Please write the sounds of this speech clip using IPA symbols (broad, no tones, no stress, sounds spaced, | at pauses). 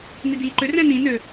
n i d iː ǃ ʏ r ɛ̃ n ĩ n ø